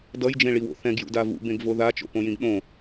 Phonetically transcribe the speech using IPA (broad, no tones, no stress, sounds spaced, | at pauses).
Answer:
d ʌ j d͡ʒ ẽ ɭ i w o̰ θ ɛ̃ ɡ j ṵ d a v ṵ b ẽ ɡ v o ð a t͡ʃ o̰ p õ j ĩ ɡ ɗ õ